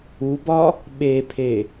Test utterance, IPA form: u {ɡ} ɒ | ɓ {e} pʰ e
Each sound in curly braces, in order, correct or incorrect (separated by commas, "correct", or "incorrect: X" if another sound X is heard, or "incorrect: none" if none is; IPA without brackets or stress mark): incorrect: b, correct